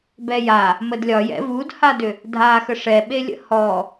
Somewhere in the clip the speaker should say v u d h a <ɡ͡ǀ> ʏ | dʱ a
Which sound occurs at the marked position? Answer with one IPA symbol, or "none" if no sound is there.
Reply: d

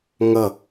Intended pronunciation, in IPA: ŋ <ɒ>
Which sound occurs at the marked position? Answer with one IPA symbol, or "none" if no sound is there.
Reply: ʌ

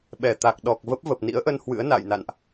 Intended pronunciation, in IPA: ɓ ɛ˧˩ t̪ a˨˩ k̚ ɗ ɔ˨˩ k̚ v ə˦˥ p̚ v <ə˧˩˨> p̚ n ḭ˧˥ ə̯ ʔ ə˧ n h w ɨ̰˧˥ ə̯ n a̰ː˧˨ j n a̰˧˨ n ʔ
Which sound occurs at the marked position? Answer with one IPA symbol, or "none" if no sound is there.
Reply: ə˨˩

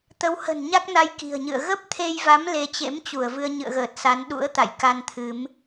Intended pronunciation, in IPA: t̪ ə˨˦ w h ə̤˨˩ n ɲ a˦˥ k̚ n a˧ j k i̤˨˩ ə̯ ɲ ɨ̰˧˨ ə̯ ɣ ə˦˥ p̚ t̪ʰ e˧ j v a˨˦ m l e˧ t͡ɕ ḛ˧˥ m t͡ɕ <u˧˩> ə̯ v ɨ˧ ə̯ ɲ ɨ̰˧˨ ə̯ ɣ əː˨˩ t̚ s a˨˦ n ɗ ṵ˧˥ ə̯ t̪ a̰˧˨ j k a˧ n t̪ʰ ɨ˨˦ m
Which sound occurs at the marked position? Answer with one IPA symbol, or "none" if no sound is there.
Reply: u˧˩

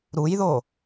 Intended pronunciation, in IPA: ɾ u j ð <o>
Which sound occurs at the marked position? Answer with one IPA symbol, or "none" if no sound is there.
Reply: o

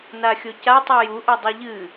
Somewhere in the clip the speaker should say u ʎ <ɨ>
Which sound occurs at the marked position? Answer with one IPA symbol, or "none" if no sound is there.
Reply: ɨ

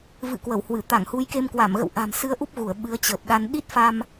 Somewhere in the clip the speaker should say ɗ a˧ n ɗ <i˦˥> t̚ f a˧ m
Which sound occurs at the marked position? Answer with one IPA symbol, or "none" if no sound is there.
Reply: i˦˥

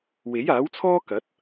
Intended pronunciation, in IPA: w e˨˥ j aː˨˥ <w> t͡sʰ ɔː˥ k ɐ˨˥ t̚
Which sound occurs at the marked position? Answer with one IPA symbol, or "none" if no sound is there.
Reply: w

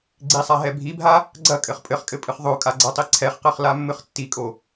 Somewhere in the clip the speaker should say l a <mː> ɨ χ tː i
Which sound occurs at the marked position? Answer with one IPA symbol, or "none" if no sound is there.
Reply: mː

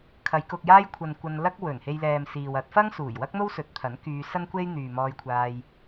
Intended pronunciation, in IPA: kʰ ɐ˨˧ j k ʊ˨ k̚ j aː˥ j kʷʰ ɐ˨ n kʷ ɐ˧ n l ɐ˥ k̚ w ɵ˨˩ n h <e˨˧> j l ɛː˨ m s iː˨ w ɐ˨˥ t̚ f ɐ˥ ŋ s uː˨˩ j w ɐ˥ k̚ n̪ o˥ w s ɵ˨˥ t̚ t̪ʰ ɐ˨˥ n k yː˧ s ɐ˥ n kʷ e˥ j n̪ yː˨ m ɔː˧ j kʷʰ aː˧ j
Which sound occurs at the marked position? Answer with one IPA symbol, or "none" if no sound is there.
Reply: e˧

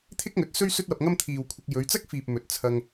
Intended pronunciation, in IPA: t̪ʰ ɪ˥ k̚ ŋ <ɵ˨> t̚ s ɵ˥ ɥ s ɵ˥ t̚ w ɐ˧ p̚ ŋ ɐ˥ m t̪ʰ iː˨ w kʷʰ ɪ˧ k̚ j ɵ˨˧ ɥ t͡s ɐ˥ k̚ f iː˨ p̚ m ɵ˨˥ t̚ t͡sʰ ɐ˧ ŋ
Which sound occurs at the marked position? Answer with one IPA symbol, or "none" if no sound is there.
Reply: ɵ˨˥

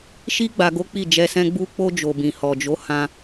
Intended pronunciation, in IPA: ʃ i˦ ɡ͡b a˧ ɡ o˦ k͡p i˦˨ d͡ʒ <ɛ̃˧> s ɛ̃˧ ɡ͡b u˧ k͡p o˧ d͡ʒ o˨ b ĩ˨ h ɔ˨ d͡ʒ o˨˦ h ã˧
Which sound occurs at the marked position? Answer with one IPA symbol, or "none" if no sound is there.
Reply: ɛ˧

